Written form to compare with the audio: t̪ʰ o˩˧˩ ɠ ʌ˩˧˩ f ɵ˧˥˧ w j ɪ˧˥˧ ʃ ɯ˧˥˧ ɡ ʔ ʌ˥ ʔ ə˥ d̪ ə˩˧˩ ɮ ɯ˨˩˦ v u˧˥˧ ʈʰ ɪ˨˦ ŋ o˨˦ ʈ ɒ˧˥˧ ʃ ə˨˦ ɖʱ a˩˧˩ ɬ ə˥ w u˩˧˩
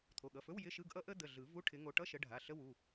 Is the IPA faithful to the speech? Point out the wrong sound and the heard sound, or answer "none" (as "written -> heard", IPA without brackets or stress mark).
ɒ˧˥˧ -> ʌ˧˥˧